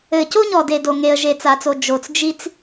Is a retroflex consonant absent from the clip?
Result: yes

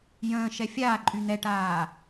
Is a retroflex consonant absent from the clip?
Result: no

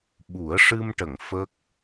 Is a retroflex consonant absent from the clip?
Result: no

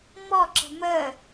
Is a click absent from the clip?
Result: no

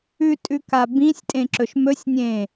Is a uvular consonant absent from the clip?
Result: yes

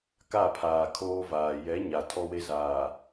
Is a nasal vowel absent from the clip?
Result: yes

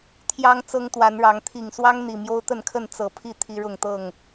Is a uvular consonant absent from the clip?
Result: yes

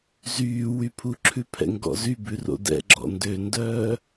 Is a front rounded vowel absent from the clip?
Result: no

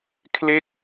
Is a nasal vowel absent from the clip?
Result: yes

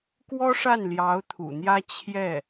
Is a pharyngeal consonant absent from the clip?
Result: yes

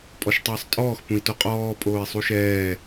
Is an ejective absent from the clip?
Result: no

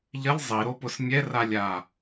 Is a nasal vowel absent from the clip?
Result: yes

